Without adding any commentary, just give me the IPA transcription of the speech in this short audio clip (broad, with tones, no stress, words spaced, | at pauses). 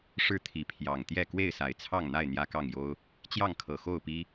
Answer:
ʂɻ̩˥˨t̪ʰi˨˦ pʰjɑ˨˩ŋt̪jɛ˥˨ kwe˥˨ɪ̯sa˨˩ɪ̯t͡sʰɑ˥˨ŋn̪a˥˨ɪ̯ n̪jä˦kɑ˥˨ŋjo˦ʊ̯ | t͡ɕjɑ˥˨ŋkʰɤ˨˩ xo˥˨ʊ̯pi˦